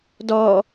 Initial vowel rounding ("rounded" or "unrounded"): rounded